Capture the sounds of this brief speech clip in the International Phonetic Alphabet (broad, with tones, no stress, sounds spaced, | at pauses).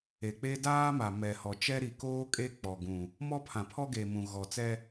e˨ k͡p e˦ d aː˦ m a˨ m ɛ˨ h ɔ˨ t͡ʃ ɛ˦ ɾ i˨ k oː˦ kʼ e˦ k͡p ɔ˨ ɡ ũ˨ | m ɔ˦ pʰ ã˨ pʰ ɔ˦ ɡ e˨ m ũ˨ ɣ ɔ˨ t͡s ɛ˦